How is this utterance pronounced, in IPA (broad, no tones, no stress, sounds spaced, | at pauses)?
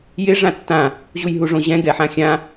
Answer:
j ɪ ʐ ã tː ã | ʑ u j ɦ u ʐ õ ʑ ɛ̃ ɡ ɛ ħ ã xʲ ã